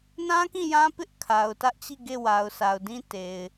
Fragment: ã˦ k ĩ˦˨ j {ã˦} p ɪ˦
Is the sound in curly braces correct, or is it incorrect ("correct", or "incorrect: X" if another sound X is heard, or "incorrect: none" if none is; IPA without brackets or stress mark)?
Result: correct